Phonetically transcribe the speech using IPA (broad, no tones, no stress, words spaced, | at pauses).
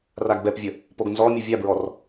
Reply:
raɡbɛpvʲə | poɡnzɔmʲə vʲabɹɔr